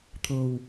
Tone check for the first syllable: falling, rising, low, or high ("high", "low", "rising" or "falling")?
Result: low